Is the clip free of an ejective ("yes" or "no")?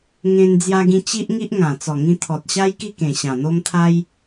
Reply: yes